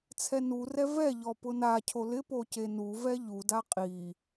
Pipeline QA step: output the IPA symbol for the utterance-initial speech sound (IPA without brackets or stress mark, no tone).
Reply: t͡sʰ